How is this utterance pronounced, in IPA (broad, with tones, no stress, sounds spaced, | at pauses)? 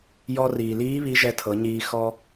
j ɔ˧ r iː˩ l iː˧˥ β i˧˥ ʒ ɛ˧ tʰ ɤ˩˧ ɲ iː˧ x ɔ˧